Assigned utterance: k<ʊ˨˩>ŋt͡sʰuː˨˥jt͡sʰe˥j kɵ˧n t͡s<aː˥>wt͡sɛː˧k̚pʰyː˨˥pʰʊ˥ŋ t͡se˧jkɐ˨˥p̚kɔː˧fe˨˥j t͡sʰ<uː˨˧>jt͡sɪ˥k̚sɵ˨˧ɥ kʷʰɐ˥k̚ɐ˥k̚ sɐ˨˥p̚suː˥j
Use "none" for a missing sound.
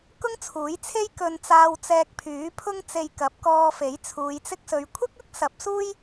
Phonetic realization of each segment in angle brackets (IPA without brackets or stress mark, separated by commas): ʊ˥, aː˧, uː˨˧